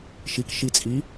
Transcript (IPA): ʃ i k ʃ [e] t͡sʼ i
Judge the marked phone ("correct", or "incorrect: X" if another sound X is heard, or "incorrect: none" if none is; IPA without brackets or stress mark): incorrect: i